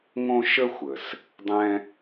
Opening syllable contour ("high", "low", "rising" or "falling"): high